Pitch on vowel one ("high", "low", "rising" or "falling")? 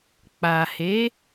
low